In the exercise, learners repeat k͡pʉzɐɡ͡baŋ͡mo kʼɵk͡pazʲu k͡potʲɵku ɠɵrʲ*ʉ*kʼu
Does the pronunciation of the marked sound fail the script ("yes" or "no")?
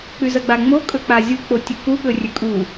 no